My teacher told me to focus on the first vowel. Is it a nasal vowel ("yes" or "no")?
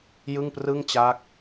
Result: no